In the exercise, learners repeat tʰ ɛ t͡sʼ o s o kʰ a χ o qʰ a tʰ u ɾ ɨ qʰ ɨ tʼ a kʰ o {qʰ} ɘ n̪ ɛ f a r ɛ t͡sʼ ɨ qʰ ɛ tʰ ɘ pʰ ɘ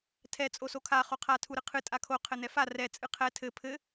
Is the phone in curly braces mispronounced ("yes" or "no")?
no